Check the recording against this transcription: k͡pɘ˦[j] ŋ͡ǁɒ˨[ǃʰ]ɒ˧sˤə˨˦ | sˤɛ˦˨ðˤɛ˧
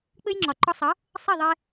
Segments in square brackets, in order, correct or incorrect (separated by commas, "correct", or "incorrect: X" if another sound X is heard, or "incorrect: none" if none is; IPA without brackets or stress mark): correct, incorrect: ǃ